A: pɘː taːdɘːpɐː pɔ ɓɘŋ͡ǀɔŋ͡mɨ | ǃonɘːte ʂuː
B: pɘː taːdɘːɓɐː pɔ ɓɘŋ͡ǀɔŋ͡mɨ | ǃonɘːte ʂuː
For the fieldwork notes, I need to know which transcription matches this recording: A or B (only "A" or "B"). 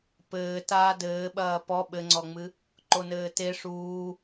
B